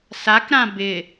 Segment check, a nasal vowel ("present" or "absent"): present